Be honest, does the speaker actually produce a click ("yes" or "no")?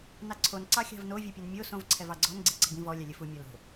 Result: yes